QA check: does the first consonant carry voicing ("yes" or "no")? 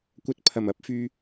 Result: no